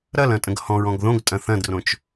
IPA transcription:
ɾɐlɐ̃tʼə̃ɡ hɔ̃ɹɔ̃ɡ ðõɡtʼɐ̃ θɐ̃drõt͡ʃ

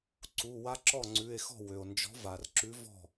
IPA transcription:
ǀu˩˧˩wa˦ ǁɔ˥˩ŋ͡ǀʉ˩˧˩e̯xɔ̤˥˩ wø˩o̯nd͡ʒɔ̤˨˥va˩rǁʉ˨˥ vɔ̤˥˩

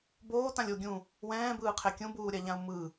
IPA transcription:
boːtãlʲ o ɡʲũ | wɛ̃ːbɯːqʰe kʲũbuːɾʲaʎãu̯ mɯ

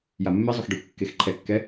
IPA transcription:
jamːezˤʊx ɖaxʷkːexǃʰɛkːɛ

